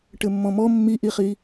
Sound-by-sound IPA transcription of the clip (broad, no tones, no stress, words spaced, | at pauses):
ʈɘmːɔ̃mɔ mːiʔiχi